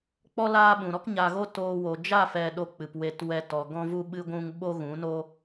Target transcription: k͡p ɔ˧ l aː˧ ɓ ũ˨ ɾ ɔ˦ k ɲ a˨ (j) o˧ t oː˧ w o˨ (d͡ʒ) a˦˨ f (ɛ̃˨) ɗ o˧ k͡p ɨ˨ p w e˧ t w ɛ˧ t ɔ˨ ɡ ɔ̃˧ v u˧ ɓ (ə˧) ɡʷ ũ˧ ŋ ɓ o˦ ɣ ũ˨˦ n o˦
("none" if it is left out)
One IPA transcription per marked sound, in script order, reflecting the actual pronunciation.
ɣ, d͡ʒ, ɛ˨, ɨ˧

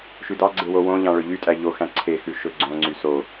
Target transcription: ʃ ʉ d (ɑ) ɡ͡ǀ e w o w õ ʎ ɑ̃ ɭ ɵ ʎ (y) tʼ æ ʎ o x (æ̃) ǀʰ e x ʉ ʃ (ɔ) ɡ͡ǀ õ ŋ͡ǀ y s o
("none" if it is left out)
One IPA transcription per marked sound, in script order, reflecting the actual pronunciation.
ɑ, y, æ̃, ɵ

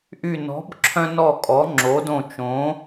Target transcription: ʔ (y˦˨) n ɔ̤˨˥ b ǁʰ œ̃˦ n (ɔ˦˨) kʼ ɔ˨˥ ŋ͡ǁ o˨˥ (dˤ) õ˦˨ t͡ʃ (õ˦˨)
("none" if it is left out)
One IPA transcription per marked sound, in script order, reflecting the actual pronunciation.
y˦˨, ɔ˦˨, d, õ˨˥

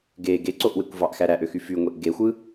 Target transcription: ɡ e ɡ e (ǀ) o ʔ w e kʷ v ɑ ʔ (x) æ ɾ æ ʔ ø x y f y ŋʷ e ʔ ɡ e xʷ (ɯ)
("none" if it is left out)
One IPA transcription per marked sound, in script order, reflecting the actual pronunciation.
ǀ, x, ɯ

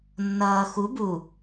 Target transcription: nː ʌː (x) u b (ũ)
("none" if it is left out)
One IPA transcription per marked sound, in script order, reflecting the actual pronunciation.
x, u

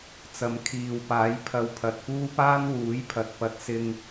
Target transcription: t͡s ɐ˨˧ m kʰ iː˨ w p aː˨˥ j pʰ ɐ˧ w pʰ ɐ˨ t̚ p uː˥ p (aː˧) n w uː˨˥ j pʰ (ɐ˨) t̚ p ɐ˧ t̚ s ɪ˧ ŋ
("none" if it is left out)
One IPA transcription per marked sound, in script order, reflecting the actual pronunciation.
aː˥, ɐ˨

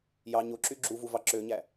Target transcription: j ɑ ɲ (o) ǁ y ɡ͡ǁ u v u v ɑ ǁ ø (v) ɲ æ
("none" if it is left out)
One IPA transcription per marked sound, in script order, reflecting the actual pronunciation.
o, none

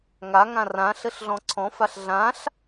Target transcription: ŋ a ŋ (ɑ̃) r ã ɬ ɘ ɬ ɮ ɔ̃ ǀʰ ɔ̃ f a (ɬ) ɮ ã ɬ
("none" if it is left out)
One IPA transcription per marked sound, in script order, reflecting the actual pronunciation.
ã, ɬ

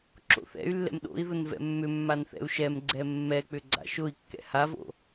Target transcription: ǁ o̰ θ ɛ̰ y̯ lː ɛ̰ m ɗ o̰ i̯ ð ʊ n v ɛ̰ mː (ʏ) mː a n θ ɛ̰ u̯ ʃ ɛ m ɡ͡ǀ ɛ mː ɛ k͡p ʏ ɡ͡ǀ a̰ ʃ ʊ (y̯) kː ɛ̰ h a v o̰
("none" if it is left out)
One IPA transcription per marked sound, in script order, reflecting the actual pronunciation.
ʏ, i̯

